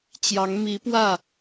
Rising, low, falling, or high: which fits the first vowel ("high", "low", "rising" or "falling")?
rising